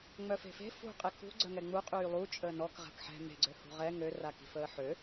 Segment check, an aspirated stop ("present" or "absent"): absent